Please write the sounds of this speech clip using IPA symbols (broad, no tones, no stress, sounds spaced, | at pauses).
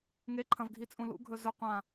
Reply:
ŋ e ǃʰ ɐ̃ v ɡʱ i t͡sʼ ũ l ṵ ɡʱ ɵ z ɵ qʷ ã